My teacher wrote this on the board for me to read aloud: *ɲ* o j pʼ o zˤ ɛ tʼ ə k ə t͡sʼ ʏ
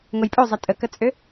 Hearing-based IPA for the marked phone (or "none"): ŋ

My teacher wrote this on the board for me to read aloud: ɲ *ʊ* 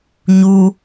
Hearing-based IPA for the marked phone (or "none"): u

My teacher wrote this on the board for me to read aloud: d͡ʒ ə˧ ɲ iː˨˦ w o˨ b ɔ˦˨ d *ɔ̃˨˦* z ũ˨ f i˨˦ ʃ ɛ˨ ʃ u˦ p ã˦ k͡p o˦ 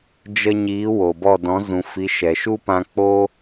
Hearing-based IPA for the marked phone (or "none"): ɔ̃˨˦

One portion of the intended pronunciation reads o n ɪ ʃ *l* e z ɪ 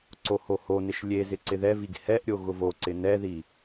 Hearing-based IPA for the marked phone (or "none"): lʲ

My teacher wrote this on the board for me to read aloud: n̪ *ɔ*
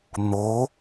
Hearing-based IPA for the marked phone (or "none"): o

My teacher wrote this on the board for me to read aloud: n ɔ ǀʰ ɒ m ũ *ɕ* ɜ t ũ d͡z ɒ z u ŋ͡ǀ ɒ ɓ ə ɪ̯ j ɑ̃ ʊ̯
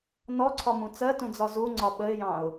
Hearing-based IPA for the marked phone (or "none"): t͡s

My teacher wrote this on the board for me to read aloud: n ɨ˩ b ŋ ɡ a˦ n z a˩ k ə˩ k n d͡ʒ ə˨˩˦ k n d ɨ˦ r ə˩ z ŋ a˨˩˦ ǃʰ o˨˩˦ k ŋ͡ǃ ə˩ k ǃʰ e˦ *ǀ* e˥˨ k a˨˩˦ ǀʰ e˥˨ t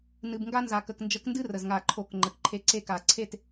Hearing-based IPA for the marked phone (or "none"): ǀ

